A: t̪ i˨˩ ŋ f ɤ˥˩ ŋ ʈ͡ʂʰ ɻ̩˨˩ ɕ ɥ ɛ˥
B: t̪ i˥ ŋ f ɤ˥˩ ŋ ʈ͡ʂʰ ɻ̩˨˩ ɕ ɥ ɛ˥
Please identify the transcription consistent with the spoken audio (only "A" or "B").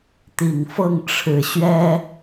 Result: A